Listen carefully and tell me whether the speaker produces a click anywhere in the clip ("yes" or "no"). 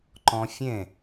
yes